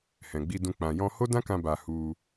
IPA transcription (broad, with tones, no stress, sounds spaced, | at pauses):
h ɛ̃˨ ɡ͡b i˧ d ũ˧ k͡p ã˨ j ɔ̃˧ h o˦ d ã˦ k ã˧ b a˧ h u˧